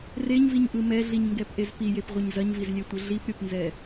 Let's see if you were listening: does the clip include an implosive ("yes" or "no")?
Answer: no